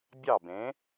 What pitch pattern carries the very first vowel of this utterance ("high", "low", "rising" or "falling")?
falling